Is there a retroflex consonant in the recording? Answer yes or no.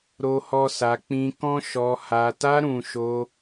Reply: no